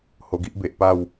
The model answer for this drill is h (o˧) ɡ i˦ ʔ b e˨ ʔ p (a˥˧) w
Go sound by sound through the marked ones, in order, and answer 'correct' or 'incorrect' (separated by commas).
correct, correct